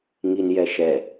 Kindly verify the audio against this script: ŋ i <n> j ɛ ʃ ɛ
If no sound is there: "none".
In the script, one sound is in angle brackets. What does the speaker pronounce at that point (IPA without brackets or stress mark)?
n